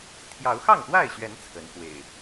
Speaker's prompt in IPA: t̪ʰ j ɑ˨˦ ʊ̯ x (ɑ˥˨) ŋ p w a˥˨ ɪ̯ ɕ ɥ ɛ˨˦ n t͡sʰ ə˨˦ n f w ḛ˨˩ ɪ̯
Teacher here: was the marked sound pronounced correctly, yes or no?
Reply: yes